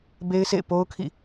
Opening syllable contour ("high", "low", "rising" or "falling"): high